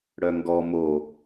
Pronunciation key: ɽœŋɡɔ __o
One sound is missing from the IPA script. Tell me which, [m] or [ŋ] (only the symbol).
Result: m